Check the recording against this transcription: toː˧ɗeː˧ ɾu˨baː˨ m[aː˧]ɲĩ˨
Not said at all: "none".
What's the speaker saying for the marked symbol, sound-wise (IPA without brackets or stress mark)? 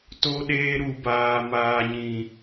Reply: aː˨